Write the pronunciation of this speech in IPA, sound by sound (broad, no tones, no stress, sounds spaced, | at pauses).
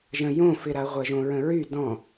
ʒ ə̃ j õ f ɪ ɾ a ʁʷ ɜ ʒ õ ɹ ə̃ ɹ y d ɔ̃